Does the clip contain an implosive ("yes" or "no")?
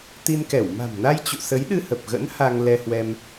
yes